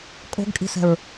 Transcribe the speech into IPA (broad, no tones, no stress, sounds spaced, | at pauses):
kʼ o̤ ɡ kʼ i̤ s ɛ̤ ɹ